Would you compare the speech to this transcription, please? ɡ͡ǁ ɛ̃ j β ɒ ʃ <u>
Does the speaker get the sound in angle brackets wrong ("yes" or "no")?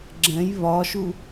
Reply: no